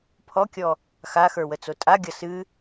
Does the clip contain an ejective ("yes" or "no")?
yes